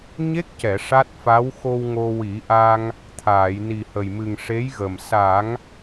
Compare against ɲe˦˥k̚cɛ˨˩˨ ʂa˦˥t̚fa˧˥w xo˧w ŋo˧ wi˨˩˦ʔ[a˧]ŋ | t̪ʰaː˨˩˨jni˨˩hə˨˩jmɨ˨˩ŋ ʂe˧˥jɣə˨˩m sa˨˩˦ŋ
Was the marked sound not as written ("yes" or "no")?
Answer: no